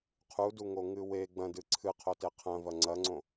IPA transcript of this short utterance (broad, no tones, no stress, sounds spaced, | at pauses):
qʰ u d u ŋ o ŋ ɨ w e ɡ͡b ɐ̃ d ɨ ǀʰ ɨ qʰ o t e qʰ ɐ̃ v ɐ ŋ͡ǀ ɐ ŋ͡ǀ õ